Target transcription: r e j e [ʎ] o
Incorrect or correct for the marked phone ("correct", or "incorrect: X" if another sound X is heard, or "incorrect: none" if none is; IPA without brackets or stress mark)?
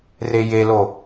incorrect: l